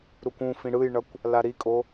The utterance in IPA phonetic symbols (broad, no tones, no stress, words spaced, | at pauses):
ɾukʷũfĩ ɽɯjɳʌkʷ | laɾikʼo